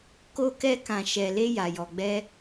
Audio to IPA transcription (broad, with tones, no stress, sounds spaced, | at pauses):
k o˧ k ɛ˧ k ã˨ ʃ ɛ˨ l e˧ j a˨ j ɔ˨ ɡ͡b ɛ˧